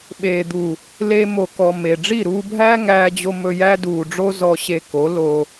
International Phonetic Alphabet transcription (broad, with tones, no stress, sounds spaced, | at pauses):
ɓ eː˨ d̪ u˨ | l e˧ m o˨ k ɔ˨ m e˨ ɖ͡ʐ i˦˨ ɾ uː˧ bʱ æː˦ ŋ æː˧ d͡ʑ o˧ m ɵ˧ j æ˦ d uː˨ ɖ͡ʐ o˦ z ɔ˧ ɕ e˧ k o˨˦ l o˧